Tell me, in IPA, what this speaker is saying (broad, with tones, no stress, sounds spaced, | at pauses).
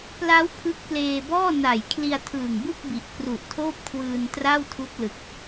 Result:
p l a˦˥ w pʰ ɯ˦˥ k̚ p l eː˧ b ɔː˥˩ n a˨˩ j kʰ l i˧ a̯ tʰ ɯː˨˩ ŋ b ɯ˥˩ k̚ b i˨˩ ʔ k r u˨˩ ʔ tʰ oː˥˩ p̚ kʰ w ɯː˧ n t r a˥˩ w tʰ u˦˥ k̚ l ɯ˨˩ k̚